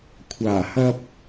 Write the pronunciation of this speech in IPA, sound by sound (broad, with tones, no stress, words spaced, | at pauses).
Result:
kʷʰaː˨˩hɐ˧p̚